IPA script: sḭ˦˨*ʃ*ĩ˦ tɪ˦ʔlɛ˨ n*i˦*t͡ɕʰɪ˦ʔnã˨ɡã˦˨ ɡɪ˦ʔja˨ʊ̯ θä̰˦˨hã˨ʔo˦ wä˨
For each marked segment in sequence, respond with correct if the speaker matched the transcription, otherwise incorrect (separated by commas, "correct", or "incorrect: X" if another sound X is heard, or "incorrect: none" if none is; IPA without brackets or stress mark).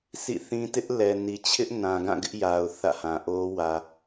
incorrect: θ, incorrect: i˨